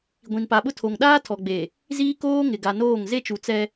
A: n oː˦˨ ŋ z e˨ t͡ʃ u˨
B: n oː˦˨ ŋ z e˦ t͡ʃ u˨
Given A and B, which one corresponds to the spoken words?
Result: B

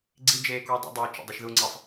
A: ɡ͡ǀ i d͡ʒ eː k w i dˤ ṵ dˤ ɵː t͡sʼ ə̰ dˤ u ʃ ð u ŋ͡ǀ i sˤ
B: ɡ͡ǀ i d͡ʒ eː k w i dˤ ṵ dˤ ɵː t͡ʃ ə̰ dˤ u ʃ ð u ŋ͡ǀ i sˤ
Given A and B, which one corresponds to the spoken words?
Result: B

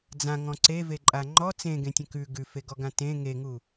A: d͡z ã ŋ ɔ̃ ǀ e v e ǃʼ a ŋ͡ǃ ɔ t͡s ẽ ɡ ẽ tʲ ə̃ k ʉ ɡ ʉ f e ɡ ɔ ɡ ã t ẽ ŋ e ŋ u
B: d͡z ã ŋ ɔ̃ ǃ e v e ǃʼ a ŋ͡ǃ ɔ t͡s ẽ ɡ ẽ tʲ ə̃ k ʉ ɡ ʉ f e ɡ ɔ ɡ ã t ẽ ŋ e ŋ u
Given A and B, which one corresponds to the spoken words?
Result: A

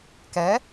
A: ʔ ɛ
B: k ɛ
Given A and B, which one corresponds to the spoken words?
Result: B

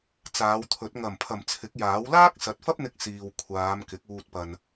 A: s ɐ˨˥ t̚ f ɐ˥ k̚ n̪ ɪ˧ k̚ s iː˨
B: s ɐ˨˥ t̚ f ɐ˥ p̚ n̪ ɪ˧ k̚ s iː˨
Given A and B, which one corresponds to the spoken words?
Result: B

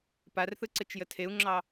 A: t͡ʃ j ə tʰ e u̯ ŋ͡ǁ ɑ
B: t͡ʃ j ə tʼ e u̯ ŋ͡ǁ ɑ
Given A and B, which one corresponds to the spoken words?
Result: A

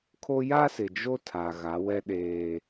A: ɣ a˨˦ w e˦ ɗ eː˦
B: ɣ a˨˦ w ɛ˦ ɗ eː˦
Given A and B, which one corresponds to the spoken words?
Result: B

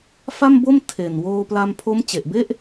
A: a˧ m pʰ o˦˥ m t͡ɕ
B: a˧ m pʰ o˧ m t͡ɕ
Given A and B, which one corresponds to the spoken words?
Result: A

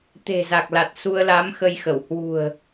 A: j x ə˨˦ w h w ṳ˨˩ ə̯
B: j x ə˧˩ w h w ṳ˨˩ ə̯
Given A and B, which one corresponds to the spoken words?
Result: B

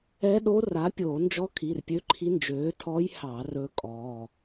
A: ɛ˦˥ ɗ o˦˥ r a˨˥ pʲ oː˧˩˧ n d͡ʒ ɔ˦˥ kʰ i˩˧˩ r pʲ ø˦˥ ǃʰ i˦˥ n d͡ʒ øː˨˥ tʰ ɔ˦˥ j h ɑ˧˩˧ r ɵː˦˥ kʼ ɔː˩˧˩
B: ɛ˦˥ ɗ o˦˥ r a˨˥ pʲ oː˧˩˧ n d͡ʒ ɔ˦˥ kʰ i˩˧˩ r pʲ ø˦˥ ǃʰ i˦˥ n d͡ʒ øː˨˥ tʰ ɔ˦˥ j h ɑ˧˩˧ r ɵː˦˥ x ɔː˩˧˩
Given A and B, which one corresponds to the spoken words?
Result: A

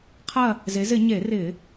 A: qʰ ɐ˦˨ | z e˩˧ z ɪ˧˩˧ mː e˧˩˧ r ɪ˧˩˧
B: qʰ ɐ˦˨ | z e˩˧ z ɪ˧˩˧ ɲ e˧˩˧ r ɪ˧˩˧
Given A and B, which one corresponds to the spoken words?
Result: B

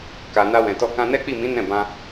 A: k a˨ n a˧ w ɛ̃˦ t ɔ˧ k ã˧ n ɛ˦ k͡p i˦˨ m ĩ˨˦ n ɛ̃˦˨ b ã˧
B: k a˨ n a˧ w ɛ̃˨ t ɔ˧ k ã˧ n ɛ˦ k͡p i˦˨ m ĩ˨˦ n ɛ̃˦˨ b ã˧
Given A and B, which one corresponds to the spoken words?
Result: B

